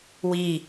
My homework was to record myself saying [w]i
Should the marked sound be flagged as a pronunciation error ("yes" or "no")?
no